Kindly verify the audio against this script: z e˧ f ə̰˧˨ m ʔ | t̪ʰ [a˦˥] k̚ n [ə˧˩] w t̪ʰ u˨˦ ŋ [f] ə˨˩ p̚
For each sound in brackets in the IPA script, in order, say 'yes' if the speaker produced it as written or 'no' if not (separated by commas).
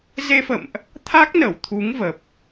yes, yes, no